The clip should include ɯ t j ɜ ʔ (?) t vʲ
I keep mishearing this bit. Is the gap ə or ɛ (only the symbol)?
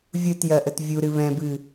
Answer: ə